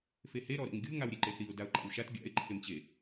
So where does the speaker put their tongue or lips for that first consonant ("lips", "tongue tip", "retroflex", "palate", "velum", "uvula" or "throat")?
lips